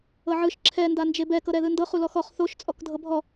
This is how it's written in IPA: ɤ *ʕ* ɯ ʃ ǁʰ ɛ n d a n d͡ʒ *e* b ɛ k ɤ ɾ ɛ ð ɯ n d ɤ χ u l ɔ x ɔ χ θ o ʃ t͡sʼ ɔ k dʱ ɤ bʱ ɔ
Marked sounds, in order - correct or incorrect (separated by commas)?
correct, correct